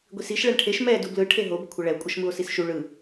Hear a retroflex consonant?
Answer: yes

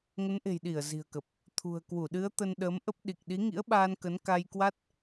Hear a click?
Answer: no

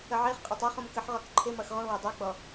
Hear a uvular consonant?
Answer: yes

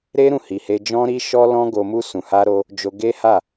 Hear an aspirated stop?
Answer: no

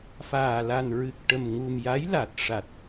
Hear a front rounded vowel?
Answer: no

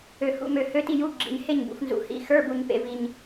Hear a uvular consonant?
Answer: no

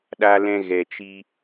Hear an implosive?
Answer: yes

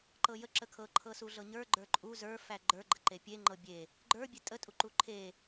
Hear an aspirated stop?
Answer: yes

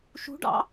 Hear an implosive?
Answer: no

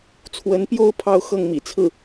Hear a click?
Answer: no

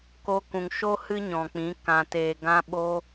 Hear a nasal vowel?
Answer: yes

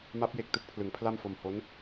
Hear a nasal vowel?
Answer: no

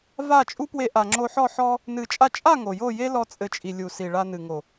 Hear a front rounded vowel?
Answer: no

